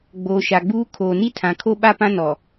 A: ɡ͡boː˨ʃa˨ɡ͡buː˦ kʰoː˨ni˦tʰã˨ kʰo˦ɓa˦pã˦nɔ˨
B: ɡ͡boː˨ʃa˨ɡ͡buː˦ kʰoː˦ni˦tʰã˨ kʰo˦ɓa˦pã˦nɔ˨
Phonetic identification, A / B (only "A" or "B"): A